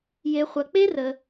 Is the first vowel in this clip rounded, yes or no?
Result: no